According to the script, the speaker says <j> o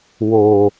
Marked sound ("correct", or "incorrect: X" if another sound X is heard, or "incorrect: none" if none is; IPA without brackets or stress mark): incorrect: w